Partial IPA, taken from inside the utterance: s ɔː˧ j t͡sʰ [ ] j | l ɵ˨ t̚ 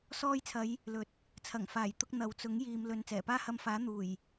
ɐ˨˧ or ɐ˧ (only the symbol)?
ɐ˨˧